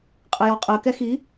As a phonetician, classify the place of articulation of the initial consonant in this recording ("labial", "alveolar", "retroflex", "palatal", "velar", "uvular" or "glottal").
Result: uvular